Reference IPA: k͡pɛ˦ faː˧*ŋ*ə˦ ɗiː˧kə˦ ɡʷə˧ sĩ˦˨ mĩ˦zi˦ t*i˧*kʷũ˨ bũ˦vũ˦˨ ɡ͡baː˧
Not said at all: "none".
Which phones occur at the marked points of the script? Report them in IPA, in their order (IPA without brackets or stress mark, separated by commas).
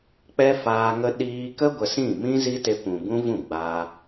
ŋ, e˧